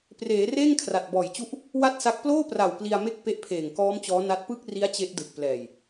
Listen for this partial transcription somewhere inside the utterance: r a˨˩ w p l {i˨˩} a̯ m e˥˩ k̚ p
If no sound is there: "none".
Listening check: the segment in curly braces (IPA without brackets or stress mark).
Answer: i˧